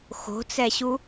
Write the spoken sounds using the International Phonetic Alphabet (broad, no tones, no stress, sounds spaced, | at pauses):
x o̤ t͡s ɛ ɕ u